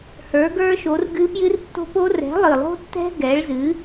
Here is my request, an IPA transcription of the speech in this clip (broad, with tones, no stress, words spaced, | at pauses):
hə˞˨˥ɡə˞˦˥ ʃo˨˥rɡɨ˦˥ pjɨ˦˥rtːo̤˦˥po˦˥ rɛ̤˨˥lˠɨ˨˩lˠo̤˦˥tːɛ̤˦˥ ɡɛ˨˥ɭzɨ˨˥